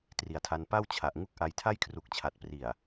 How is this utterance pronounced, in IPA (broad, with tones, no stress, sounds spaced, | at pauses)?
t r i˨˩ a̯ tʰ a˧ n p a˥˩ w t͡ɕʰ a˨˩ ʔ ŋ u˦˥ k̚ ʔ a˧ j tʰ a˥˩ j kʰ r u˨˩ k̚ t͡ɕʰ a˨˩ t̚ p r i˨˩ a̯